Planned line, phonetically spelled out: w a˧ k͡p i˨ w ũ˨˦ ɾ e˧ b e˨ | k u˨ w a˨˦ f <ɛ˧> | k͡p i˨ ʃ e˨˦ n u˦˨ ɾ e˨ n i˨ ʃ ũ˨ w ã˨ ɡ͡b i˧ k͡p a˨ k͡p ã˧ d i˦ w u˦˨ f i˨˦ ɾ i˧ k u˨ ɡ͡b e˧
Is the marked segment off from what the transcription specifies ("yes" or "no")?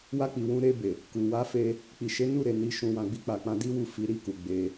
yes